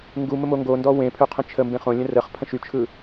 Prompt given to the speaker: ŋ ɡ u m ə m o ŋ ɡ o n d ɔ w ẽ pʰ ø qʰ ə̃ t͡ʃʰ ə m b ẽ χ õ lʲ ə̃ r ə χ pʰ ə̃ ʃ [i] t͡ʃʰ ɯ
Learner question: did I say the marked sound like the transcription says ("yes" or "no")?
no